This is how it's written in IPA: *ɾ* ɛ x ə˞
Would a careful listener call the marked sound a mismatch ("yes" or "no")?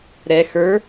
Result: no